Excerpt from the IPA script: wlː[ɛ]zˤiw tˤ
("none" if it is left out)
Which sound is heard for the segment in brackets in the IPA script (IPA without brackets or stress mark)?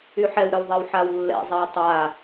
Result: ɛ̰